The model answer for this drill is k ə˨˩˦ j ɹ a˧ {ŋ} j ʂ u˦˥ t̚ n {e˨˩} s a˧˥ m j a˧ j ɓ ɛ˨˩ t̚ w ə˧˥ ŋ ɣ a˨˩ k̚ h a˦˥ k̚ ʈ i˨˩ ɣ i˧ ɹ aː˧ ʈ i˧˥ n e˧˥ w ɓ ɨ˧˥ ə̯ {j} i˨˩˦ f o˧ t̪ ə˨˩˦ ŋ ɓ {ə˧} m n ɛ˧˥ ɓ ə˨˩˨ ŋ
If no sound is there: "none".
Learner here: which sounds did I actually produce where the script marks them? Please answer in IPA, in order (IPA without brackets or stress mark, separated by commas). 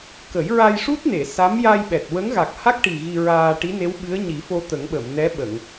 none, e˨˩˨, ɲ, ə˨˩˨